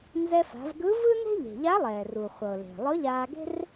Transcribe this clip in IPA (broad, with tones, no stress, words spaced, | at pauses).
nzɛ˧fa̤˩˧vɡɯ˧˥ vɯ˥ne̤˥ʎe̤˩ ʎa˧˥lˠɛː˩ru˩ χʷɤ˩le̤˩ lˠɤ˧˥ʎaː˧ɡe̤˥r